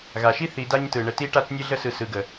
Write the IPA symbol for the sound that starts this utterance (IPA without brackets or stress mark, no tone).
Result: ɣ